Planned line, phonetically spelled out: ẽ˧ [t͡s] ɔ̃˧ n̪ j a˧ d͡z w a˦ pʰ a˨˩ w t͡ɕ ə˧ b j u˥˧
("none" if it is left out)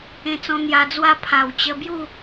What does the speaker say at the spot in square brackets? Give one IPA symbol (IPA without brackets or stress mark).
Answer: t͡s